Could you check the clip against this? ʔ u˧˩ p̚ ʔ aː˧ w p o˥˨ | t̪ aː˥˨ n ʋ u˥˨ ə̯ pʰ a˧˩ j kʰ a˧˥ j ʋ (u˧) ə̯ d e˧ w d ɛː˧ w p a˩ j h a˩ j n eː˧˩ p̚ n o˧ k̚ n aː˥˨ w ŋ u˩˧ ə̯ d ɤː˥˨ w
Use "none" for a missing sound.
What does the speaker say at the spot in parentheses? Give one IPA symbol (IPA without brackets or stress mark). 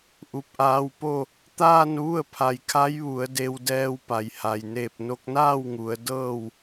u˩˧